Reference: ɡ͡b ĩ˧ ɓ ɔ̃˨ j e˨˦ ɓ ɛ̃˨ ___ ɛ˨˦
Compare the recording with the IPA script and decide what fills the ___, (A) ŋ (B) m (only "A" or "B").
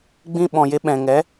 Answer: A